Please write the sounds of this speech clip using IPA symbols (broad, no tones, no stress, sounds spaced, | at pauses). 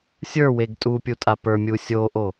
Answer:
sʲ ə˞ w e ɡ tʼ u pʲ u tʼ a p ə˞ mʲ u sʲ o ʔ o